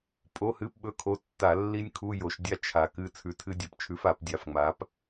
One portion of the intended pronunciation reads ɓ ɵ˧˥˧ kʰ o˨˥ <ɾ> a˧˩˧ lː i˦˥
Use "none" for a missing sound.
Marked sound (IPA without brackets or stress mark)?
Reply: tː